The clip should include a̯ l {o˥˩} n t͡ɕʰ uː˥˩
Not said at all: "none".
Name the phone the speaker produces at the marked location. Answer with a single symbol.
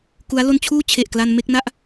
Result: o˥˩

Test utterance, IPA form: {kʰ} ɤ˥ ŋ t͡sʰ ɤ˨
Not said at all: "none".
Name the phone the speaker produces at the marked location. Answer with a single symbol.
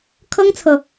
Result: kʰ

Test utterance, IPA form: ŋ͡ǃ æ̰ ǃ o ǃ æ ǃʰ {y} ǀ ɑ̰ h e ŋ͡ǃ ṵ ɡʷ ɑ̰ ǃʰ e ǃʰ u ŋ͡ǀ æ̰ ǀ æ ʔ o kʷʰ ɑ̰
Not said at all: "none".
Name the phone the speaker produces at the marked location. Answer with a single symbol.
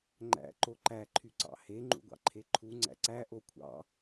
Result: y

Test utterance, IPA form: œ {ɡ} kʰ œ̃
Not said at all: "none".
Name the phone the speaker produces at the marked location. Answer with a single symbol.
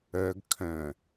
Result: ɡ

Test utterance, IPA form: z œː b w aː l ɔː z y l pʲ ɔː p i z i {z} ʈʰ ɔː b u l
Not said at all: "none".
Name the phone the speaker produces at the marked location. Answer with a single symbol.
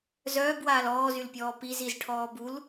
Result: z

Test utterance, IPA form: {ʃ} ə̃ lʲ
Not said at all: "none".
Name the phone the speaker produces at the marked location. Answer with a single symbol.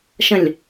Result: ʃ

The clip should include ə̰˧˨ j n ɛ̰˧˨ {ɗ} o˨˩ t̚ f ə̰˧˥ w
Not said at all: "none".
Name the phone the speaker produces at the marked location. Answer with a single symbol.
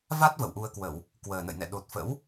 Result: ɗ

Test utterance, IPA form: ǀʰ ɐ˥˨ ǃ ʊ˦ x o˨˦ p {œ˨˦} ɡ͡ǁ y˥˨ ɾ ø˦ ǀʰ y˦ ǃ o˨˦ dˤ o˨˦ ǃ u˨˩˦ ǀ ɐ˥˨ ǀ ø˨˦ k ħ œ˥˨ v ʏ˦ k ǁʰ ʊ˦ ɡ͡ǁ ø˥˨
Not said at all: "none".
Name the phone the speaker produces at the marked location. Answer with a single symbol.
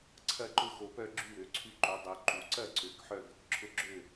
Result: œ˦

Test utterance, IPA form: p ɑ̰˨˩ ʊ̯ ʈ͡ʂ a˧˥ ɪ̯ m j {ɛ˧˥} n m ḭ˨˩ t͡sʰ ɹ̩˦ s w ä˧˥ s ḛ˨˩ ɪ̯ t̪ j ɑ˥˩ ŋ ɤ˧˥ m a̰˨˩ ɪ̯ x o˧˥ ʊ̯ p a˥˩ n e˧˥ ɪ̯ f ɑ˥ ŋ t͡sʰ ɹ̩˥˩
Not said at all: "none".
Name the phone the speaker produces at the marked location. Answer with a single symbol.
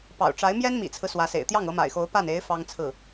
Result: ɛ˥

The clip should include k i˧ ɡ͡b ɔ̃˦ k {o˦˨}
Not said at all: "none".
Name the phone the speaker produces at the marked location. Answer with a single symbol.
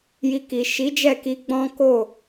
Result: o˦˨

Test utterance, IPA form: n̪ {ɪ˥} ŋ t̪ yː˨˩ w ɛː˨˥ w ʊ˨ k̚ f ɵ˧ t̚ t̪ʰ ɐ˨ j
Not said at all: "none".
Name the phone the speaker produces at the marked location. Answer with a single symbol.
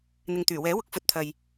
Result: ɪ˨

